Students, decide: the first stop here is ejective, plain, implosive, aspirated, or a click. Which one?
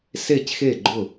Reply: plain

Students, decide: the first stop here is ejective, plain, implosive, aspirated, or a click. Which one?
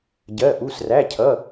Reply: plain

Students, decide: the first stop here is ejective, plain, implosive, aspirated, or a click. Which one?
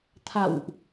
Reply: aspirated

